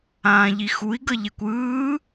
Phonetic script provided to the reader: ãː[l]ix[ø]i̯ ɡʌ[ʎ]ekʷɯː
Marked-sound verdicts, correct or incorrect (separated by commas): incorrect, incorrect, correct